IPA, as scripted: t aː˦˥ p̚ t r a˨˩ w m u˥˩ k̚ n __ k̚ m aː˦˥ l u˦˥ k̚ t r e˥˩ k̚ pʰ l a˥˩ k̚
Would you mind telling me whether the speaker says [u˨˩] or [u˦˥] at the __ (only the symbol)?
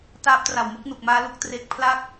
u˨˩